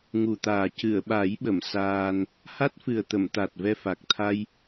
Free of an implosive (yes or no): no